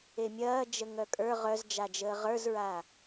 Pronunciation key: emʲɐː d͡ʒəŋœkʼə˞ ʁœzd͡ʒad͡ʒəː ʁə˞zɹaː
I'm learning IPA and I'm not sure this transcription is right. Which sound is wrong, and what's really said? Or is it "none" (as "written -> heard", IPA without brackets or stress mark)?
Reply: none